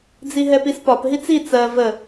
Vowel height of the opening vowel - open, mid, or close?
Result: close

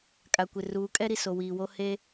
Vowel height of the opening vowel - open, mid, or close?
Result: open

